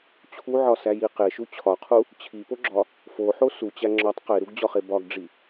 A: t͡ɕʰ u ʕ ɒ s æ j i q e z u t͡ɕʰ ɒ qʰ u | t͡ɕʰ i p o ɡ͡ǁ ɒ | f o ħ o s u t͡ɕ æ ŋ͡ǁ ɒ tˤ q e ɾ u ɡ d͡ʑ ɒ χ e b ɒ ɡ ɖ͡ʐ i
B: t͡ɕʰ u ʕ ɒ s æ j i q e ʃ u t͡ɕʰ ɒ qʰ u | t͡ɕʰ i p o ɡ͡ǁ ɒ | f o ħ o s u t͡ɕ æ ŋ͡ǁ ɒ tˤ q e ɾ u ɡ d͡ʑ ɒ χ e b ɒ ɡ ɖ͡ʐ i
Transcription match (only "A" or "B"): B